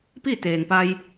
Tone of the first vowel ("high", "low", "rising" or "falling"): falling